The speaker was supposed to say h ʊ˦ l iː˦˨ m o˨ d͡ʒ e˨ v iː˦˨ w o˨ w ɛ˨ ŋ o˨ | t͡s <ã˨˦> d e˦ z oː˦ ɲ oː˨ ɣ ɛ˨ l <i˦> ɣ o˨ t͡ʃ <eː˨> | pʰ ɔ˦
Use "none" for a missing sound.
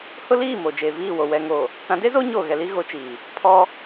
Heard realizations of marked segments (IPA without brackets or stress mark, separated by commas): ã˨˦, i˦, iː˨